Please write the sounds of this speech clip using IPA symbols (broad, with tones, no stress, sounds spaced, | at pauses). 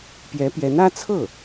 p j ɛ˧˥ p j ɛ˧˥ n ä˥ t͡sʰ ɤ˥˩